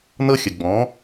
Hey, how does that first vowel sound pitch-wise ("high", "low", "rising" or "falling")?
high